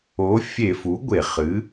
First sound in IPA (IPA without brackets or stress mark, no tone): o